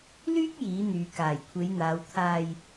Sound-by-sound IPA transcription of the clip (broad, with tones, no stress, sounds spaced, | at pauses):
l yː˥ k̚ j iː˨˥ n̪ yː˨˧ k aː˨˩ j kʷʰ e˨˧ j n̪ aː˨˧ w t̪ʰ aː˧ j